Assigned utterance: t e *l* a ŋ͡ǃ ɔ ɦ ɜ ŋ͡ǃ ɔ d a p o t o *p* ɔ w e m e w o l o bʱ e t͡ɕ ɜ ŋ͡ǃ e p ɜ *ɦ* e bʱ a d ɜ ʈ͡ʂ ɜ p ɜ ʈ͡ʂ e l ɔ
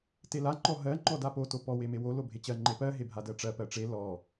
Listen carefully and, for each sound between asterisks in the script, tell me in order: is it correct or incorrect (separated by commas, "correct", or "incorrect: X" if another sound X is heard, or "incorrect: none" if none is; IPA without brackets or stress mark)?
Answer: correct, correct, correct